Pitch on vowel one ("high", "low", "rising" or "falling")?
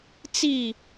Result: falling